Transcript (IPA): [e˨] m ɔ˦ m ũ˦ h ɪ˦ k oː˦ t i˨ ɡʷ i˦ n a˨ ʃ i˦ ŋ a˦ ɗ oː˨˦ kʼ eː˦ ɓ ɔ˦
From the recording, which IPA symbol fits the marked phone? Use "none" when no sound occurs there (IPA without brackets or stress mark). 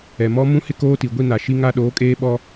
ɛ˨